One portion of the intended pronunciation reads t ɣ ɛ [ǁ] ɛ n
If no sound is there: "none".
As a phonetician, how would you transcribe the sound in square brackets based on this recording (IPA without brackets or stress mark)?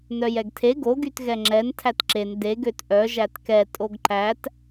ŋ͡ǁ